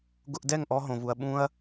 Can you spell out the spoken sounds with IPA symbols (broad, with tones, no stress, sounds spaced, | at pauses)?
ɡ ʊ˧ ʔ d ɛ˦˨ ŋ ʔ ɔ˧ ɦ õ˨ v u˨ ɐ̯ ɓ ũ˧ ɐ̯